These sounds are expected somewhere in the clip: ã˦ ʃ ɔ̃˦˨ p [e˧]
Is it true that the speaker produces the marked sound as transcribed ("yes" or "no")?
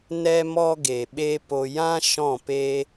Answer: no